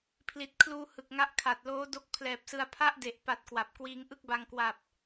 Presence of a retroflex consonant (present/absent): absent